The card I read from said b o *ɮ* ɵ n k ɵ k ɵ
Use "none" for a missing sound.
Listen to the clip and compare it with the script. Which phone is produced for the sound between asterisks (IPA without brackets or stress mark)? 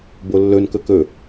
lː